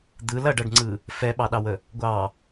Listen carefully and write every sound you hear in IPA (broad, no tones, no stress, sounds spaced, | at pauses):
d̪ ɯ l ɐ ɖ ɐ ɖ ŋ͡ǀ ɯ | f ɛ ɓ ɑ ɗ ɑ w ə | ɡʷ ɑ